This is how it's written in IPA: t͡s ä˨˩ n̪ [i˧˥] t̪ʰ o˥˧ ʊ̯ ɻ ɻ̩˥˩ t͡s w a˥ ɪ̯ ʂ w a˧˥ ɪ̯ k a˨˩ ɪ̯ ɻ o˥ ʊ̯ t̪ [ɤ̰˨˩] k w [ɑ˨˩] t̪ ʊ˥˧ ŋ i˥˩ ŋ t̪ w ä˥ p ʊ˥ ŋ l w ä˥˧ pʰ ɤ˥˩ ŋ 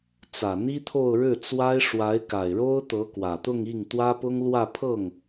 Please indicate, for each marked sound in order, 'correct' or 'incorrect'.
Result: incorrect, incorrect, incorrect

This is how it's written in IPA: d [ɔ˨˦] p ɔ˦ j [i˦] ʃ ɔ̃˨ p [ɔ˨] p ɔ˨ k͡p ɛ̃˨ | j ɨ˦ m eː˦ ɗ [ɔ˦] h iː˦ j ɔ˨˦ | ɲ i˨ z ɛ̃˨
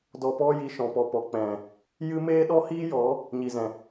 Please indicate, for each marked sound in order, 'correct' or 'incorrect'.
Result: incorrect, incorrect, correct, correct

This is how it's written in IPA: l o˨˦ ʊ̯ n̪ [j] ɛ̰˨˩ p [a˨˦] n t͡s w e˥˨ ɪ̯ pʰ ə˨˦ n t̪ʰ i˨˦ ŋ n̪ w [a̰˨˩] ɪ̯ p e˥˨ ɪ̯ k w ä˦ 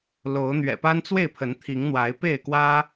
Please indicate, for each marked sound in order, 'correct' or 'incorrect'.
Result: incorrect, incorrect, incorrect

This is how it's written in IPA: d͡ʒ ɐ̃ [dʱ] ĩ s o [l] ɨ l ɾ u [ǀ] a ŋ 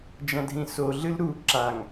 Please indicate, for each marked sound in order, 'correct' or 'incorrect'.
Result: correct, incorrect, incorrect

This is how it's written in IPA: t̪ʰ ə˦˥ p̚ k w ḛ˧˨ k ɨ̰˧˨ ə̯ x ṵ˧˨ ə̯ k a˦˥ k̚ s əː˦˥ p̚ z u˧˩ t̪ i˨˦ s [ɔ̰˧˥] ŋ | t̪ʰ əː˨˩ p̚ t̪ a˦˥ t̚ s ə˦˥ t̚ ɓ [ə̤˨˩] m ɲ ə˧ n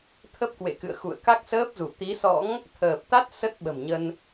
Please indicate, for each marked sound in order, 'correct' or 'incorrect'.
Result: correct, correct

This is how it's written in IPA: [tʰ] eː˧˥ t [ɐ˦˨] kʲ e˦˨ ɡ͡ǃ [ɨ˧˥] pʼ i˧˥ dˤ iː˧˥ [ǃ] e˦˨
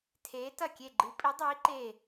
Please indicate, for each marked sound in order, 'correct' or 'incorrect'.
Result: correct, correct, correct, correct

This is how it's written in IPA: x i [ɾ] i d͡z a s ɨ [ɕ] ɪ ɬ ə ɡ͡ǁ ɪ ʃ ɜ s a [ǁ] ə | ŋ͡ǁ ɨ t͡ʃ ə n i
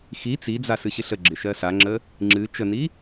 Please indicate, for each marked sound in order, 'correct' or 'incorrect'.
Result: incorrect, correct, incorrect

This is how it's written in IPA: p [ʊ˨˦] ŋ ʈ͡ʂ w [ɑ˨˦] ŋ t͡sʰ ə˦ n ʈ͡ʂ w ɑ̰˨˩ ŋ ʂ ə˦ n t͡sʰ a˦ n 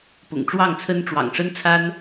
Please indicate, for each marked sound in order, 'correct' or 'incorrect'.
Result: incorrect, incorrect

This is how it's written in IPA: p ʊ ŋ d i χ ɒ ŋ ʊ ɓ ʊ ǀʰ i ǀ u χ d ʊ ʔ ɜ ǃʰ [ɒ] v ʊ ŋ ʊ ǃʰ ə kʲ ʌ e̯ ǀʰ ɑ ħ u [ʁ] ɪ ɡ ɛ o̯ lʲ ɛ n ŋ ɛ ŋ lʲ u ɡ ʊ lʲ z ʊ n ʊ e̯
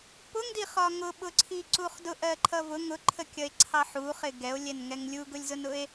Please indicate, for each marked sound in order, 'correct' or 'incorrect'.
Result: incorrect, incorrect

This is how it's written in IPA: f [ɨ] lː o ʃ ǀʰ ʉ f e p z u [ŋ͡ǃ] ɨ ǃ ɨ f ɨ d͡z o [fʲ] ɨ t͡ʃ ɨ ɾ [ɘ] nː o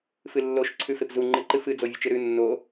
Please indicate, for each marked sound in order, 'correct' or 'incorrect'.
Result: correct, correct, incorrect, incorrect

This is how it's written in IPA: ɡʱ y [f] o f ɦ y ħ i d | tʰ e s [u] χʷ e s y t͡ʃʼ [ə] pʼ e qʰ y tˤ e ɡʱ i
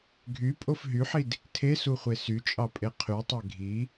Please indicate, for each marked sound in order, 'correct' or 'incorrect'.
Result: incorrect, correct, incorrect

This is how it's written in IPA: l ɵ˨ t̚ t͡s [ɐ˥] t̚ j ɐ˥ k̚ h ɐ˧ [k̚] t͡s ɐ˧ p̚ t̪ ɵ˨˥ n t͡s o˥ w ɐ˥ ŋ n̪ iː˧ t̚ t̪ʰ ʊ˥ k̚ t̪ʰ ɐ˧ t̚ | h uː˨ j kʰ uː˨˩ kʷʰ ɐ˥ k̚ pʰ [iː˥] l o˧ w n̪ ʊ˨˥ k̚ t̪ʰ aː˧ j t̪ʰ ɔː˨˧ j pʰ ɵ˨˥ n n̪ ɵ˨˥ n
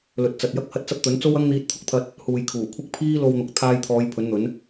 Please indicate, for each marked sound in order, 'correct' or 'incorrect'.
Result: incorrect, incorrect, correct

